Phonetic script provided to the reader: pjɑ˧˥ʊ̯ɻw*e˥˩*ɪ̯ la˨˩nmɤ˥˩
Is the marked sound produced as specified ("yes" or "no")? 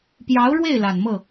yes